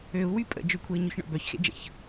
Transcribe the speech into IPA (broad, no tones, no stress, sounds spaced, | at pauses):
ø u̯ w y pʼ ə̰ d͡ʒ ʏ kʷʰ e i̯ ɲ ʊ ç ɳ ɔ̰ b œ ç x ḛ d͡ʒ ə̰ ç